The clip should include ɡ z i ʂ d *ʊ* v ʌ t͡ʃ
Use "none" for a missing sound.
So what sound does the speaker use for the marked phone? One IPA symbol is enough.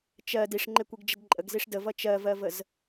ə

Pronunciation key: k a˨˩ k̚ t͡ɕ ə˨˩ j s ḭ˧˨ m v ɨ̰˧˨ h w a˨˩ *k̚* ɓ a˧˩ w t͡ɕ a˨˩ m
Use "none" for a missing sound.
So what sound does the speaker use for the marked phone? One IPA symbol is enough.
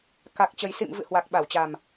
k̚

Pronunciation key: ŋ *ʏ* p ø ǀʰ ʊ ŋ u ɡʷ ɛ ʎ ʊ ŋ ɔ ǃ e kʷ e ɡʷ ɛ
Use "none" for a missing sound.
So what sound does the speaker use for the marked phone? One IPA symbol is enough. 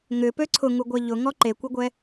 ʏ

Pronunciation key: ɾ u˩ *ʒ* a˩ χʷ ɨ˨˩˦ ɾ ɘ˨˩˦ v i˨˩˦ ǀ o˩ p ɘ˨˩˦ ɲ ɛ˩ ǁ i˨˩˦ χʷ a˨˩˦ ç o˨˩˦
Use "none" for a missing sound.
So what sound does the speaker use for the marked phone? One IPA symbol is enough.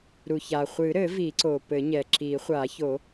ç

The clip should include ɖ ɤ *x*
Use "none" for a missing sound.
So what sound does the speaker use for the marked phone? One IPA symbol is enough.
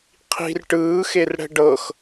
x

